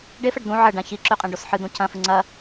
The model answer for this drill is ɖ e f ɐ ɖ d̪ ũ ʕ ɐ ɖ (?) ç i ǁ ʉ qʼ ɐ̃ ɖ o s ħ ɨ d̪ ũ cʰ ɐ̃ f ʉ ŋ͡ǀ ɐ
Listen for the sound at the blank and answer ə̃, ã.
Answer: ã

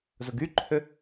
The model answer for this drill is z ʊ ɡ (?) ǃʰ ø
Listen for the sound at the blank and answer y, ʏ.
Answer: y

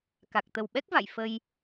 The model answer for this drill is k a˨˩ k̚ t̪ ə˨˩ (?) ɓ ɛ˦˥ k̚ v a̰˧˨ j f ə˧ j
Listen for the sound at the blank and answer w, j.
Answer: w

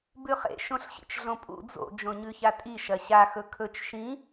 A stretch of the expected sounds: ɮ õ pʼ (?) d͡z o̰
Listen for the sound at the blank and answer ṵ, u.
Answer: ṵ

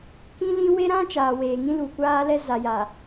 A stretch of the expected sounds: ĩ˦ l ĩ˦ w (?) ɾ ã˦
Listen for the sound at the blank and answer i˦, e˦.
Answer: e˦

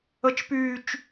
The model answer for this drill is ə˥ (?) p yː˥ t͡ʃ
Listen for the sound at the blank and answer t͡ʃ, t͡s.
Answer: t͡ʃ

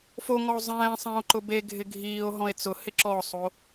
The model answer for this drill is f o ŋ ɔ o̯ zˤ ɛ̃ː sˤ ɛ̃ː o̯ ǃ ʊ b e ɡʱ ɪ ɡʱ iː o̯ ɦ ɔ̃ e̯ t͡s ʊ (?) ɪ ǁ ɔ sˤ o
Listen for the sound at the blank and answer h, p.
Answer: h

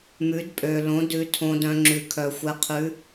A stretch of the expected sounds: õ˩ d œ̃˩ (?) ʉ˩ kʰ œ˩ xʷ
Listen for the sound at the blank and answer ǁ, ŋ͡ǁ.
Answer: ŋ͡ǁ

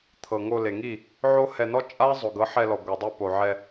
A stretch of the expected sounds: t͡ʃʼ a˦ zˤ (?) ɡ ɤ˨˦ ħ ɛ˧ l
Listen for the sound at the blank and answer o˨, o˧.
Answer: o˨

